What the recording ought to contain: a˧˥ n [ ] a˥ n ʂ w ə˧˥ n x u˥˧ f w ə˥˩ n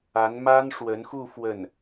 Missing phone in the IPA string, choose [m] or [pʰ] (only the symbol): m